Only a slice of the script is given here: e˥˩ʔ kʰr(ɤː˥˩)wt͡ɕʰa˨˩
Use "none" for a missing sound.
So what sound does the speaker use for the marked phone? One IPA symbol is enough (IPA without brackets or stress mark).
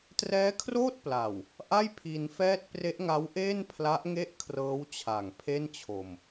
ɤː˦˥